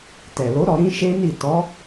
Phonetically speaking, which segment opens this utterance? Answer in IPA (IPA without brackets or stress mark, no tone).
t